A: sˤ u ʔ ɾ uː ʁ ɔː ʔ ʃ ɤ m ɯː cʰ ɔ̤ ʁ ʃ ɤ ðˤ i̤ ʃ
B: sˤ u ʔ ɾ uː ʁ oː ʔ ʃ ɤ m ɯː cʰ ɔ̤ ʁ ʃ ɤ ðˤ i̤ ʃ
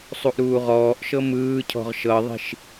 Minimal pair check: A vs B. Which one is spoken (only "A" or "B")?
A